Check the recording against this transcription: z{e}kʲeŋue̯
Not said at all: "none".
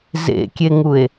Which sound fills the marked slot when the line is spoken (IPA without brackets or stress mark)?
ḛ